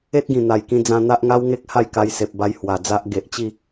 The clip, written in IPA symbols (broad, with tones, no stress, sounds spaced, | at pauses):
e˦ t̚ ɡ ĩ˨˩ n̪ a˨˩ j k ĩ˧ d͡z ã˧ n̪ a˦ ʔ ŋ a˦ w ŋ e˦ k̚ h a˥˧ j k a˧ j s e˨ p̚ b a˧ j h w a˨˩ d͡z a˦ ʔ ɡ e˨ ʔ t͡ɕ i˥˧